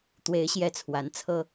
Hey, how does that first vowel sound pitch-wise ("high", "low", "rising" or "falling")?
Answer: rising